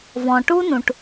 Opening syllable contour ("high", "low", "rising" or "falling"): low